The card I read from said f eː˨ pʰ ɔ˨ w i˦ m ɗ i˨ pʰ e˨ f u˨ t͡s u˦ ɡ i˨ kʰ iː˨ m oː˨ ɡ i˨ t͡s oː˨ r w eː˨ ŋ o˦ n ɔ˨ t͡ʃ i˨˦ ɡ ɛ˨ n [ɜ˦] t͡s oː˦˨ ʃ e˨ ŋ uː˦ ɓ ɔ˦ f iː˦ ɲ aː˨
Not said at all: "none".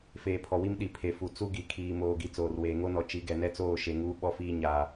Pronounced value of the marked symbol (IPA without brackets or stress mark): ɛ˦